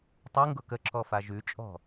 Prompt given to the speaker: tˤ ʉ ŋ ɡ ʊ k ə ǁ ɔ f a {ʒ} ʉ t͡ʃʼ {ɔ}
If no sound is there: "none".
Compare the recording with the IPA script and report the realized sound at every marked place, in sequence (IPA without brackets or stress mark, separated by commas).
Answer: ʒ, ɔ̤